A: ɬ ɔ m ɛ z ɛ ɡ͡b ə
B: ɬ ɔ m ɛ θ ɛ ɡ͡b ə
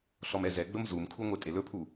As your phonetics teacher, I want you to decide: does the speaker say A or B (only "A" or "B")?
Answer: A